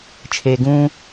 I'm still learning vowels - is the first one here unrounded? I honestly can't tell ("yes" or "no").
yes